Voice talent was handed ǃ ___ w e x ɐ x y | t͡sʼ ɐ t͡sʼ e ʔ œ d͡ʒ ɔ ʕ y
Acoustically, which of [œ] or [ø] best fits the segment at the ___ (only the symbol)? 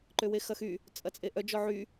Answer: ø